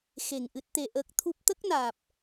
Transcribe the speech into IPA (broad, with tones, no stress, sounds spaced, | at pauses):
x e˨˩ ŋ ʔ ɨ˦˥ t̚ t̪ e˧ ʔ əː˦˥ k̚ t̪ʰ u˦˥ p̚ t̪ ə˦˥ k̚ n aː˨˩ p̚